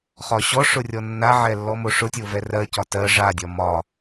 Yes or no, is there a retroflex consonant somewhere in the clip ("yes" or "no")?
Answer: yes